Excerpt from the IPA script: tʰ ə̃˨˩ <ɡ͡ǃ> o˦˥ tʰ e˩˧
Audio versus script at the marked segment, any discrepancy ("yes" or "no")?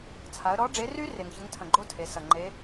no